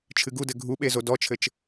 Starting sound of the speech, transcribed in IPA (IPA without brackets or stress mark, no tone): t͡ʃʰ